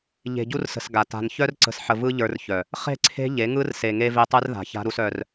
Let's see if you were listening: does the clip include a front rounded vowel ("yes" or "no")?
yes